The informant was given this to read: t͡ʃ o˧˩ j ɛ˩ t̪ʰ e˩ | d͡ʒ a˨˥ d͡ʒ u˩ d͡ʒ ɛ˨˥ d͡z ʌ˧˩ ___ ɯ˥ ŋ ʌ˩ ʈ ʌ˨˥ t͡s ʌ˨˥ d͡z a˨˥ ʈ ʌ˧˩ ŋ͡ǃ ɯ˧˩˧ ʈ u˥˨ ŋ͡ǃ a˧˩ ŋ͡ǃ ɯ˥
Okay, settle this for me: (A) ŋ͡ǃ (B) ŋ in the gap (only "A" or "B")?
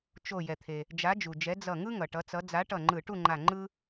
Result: B